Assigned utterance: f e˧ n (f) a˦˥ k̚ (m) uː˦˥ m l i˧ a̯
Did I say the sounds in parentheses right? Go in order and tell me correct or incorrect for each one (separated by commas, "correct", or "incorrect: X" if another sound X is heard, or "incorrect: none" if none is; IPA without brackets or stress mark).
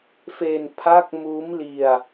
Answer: incorrect: pʰ, correct